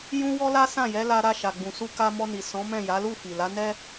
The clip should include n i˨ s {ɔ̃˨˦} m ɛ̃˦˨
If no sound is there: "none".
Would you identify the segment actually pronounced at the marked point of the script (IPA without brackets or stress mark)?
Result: ɔ̃˨˦